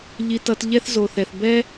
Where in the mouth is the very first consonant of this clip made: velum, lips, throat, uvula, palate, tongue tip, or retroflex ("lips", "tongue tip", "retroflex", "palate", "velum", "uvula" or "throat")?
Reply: palate